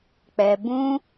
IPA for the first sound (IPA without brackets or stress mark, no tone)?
k͡p